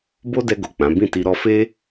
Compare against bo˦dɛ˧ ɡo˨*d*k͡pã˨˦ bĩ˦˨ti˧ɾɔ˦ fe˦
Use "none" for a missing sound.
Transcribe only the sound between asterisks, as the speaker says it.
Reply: none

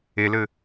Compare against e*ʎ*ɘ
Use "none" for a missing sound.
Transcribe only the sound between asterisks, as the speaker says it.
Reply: l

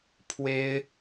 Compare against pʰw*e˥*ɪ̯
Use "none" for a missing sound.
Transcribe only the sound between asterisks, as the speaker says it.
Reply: e˥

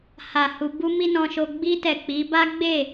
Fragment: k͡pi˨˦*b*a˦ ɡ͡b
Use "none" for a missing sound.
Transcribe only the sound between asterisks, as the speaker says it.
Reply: b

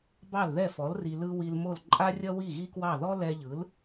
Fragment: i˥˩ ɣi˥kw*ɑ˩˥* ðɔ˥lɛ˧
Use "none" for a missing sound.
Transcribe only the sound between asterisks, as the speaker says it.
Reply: ɑ˥˩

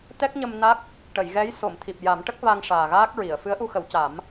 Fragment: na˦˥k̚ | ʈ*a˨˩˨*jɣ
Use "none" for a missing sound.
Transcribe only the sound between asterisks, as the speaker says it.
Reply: ə˨˩˨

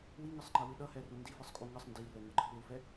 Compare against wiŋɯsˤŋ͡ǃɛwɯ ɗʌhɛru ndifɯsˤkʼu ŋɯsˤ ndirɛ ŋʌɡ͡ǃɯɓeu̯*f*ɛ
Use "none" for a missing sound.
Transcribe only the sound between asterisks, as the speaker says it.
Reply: f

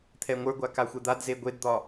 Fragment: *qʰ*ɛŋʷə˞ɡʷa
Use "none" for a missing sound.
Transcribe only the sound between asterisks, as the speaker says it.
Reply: t̪ʰ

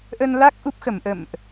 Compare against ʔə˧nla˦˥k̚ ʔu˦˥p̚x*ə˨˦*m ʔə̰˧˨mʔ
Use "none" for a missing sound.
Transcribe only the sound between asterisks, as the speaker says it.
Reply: ə˧˩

